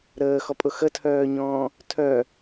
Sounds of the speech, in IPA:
ɾ əː x ɔ pʼ ʊ x ə tʰ œː ɲ ɔ̃ː | tʰ œ

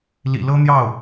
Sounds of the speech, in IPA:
l ḭ˨˩ l ɤ˥ n̪ j ɑ˥˩ ʊ̯

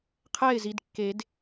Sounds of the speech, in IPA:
qʰ ɛː˥˩ ɪ̯ z i˩˧˩ d kː e˨˩˦ d

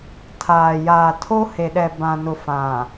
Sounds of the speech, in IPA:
tʰ aː˨ j aː˨ tʰ o˦ h e˨ ɗ ɛ˨ b ã˨ n ʊ˨ f ã˨

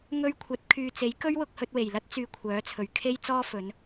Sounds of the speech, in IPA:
ŋ ɵ˧ ɥ kʷʰ ɐ˨˥ t̚ kʰ yː˨ t͡s e˨˥ j k ɵ˥ ɥ w ʊ˧ k̚ h ɵ˧ t̚ w e˨˩ j l ɐ˥ t̚ t͡s yː˧ kʷʰ œː˨˥ t͡sʰ ɵ˨ ɥ kʰ e˥ j t͡s ɔː˥ f ɵ˨˧ n

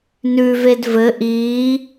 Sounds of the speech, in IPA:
n ʉ v e d v ɘ ʔ iː

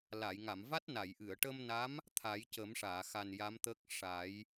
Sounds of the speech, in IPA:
l a˨˩˨ j ŋ a˨˩˨ m v a˦˥ t̚ n a˨˩˨ j ʔ ɨ˨˩˨ ə̯ ʈ ə˧ m n a˧˥ m | t̪ʰ a˨˩˦ j c ə˨˩˦ m ʂ aː˨˩˨ x a˨˩ n j a˧˥ m t̪ əː˦˥ k̚ ʂ a˨˩˦ j

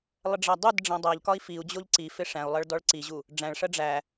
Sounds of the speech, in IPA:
lˠ ə ɖ͡ʐ æ dˤ u d ɖ͡ʐ æ̃ dˤ æ ʎ k ɒ i̯ f i u̯ d͡ʑ o ʎ ǀ i f ɪ ʂ æ̃ u̯ lˠ ɜ ɭ d ɔ ɭ ǀ i ʑ u | ɖ͡ʐ æ̃ ɭ ʂ ɜ ɖ͡ʐ æ

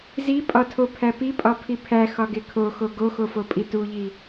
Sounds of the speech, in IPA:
z i pʼ ɒ tʰ o pʰ æ p i pʼ ɒ pʰ i pʰ æ x ɒ ɡ e kʰ o x o ɡ o x o f o pʼ i t u ʎ i

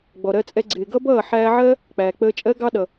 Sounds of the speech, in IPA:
ɡ͡b ɔ˨ ɾ ɜ˧ t͡sʼ ɛ˧ ɡ͡ǀ ɪː˨ ɡ ʌ˦ b ʌː˦˨ ħ æː˧ ʕ ɜ˦ | k͡p æː˨ k͡p əː˧ t͡ʃʼ ɜ˦ ɡ ɑ˦ ɗ ʌ˨

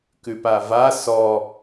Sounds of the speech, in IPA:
k ʉ p a v a s ɔ

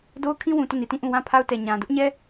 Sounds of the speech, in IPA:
d o˦ ʊ̯ kʰ ĩ˦ w ũ˨ t o˦˨ n i˨ t ĩ˦˨ ʔ ũ˦˨ w ã˦˨ pʰ a˦ ʊ̯ t ɛ˨ ɲ ã˨ d ʊ˦ ʔ ɲ ɛ˦

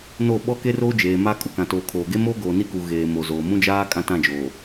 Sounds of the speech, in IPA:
n o˦˨ ɓ ɔ˦ k e˦ r oː˦ d͡ʒ eː˨ m aː˦ kʼ u˨ k ã˨ t oː˨ kʰ oː˨ ɡ e˦ m o˦ ɡ oː˨ n i˦ k u˨ ɣ eː˨ m o˨ z oː˨ m ũ˦ d͡ʒ aː˦ kʼ ã˦ t ã˦˨ d͡ʒ oː˨

